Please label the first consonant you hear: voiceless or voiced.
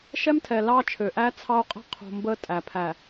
voiceless